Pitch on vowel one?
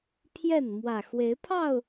falling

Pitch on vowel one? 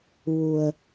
low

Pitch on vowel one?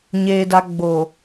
low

